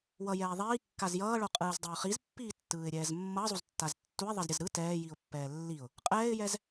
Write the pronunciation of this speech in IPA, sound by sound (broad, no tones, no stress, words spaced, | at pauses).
wʌjɛː ðˤiːkːaz jʌːɭoqʼɯːzdˤeʊ̯ χizpːiːtːɯːɪ̯ɾʲɛːz mːʌzˤuztːaz tːuɪ̯ðˤʌzɾʲʌz ɾɯ tɛːjiʊ̯pːɛː lːiʊ̯ | qʼɛːɪ̯jɛz